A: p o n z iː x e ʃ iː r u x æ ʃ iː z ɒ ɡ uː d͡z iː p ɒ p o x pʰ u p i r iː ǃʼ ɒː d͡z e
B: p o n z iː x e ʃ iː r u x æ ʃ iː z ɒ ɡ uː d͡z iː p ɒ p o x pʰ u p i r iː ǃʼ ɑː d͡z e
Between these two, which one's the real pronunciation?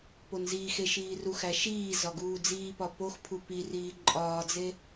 A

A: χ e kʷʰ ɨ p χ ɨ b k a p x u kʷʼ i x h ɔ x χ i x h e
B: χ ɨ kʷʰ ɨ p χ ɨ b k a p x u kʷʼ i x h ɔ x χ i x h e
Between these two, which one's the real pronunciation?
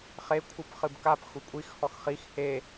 A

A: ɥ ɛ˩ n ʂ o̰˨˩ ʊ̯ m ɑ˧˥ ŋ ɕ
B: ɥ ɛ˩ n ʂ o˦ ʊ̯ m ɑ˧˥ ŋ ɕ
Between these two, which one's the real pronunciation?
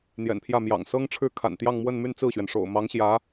A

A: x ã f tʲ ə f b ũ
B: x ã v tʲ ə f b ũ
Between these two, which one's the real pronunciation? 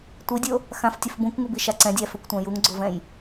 A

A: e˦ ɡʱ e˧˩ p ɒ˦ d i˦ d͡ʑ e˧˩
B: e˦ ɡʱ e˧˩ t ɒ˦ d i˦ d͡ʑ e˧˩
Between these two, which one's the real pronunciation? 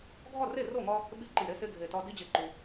B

